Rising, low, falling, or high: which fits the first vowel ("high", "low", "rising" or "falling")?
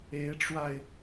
rising